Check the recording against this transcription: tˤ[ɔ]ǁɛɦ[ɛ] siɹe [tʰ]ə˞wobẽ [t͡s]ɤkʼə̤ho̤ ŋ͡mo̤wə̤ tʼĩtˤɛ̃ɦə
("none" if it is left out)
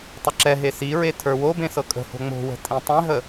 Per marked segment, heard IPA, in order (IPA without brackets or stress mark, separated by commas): ə, e, tʰ, s